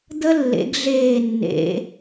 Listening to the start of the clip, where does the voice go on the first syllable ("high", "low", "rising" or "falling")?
high